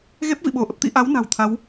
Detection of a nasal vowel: absent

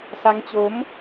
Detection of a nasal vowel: absent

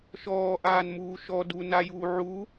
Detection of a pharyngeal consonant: present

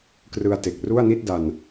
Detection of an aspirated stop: absent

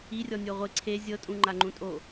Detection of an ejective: present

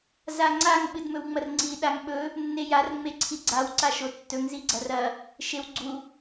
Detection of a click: present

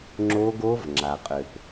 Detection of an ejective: present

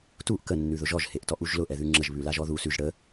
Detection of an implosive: absent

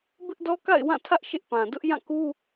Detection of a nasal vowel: present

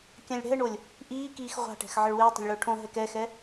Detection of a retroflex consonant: present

